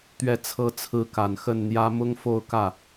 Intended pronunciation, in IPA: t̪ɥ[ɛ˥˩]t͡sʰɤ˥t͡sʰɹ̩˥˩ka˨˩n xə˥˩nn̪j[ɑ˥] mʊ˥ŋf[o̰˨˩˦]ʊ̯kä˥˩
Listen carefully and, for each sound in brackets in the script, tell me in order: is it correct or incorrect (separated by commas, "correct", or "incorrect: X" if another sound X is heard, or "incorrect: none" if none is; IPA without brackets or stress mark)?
correct, incorrect: ä˥, incorrect: o˥˧